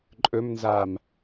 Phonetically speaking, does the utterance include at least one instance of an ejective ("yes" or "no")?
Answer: yes